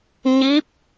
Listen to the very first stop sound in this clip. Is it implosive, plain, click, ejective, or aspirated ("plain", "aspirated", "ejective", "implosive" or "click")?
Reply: plain